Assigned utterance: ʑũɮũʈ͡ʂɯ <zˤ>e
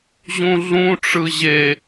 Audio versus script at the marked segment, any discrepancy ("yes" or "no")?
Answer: yes